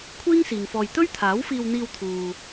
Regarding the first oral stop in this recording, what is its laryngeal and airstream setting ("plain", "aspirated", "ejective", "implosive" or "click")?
aspirated